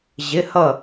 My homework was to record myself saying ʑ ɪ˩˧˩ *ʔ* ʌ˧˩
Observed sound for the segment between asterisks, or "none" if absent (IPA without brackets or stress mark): h